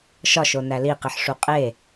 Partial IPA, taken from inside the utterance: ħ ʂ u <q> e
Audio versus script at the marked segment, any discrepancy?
yes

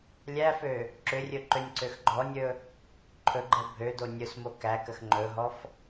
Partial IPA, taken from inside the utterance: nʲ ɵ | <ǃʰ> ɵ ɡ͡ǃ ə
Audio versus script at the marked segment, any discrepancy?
no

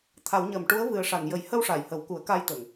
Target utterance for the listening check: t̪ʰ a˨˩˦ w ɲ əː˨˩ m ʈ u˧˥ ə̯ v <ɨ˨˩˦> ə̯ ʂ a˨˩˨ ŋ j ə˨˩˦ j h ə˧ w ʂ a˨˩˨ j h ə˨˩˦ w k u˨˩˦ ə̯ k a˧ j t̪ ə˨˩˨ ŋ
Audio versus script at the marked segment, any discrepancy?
yes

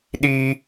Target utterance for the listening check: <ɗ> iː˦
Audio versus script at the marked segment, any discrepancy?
no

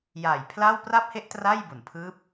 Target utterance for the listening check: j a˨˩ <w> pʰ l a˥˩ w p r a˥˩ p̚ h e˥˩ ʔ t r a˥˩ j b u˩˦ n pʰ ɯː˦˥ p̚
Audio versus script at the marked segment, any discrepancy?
yes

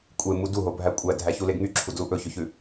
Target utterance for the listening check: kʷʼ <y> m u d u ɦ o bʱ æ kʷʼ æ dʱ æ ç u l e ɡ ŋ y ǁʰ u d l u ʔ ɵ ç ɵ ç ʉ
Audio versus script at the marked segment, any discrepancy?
yes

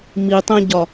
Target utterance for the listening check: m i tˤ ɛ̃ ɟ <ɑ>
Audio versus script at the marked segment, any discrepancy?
yes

